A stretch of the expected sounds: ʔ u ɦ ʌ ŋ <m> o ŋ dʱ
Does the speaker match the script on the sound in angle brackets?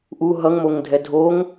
yes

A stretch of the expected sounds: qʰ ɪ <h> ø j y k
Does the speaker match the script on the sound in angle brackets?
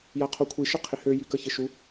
yes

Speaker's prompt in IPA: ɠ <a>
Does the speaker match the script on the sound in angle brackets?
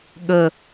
no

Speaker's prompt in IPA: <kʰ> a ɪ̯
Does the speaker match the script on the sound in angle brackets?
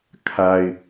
yes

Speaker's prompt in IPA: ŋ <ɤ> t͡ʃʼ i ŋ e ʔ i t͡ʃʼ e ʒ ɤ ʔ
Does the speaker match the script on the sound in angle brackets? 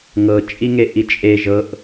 yes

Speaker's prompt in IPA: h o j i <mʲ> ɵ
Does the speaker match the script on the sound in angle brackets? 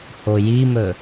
no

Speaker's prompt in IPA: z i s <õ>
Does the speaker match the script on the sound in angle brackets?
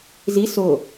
no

